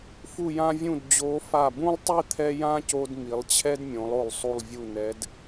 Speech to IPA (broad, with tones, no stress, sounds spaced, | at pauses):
f u˧˩ j ã˧ vʲ ũ˧˩ d d͡ʑ o˩˧ f a˧˩ b ũ˥ lˠ tˤ i˥˧ t̪ʰ ɛ˥ j ã˥ c o˧ d m i˩˧ lˠ t͡ɕʰ ɛ˥ d mʲ õ˩˧ lˠ o˧˩ lˠ sˤ u˧˩ lˠ vʲ u˧˩ n ɛ˩˧ d